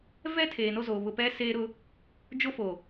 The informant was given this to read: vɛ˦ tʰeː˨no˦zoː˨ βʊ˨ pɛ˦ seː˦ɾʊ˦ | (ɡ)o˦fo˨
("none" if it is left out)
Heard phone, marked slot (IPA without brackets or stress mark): d͡ʒ